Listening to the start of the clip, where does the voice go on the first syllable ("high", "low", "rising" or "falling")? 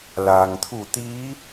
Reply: low